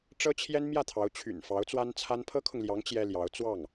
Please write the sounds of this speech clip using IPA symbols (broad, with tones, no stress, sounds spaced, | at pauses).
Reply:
ʈ͡ʂ ɤ˥ t͡ɕʰ j ɛ˥ n m j ä˥˩ t̪ʰ ɑ˧˥ ʊ̯ t͡ɕʰ y̰˨˩ n f ɑ˧˥ ʊ̯ t͡s w a˥ n t͡sʰ a˥ n pʰ ɤ˥ kʰ ʊ˨ ŋ l j ɑ˧˥ ŋ t͡ɕ j ɛ˥ l j ɑ˧˥ ʊ̯ t͡s w ɑ˥˩ ŋ